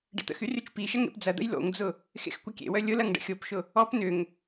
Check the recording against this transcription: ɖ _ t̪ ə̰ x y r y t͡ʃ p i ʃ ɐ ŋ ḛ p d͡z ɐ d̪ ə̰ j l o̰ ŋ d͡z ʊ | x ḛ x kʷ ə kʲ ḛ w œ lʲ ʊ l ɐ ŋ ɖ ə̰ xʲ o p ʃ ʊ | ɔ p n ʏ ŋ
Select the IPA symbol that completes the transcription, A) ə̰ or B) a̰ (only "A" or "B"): A